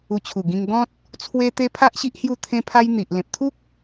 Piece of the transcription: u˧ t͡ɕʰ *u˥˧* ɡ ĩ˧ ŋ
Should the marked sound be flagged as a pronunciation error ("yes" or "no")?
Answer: yes